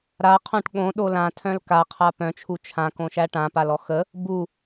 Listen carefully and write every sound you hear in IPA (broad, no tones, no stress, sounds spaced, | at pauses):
ɾ a qʰ õ ʈ ɠ õ ɗ o l ã tʰ œ̃ l k a qʰ a p œ̃ t͡ʃʰ u t͡ʃʰ ã k õ ʃ æ ʈ ã p a l ɔ x ə | b u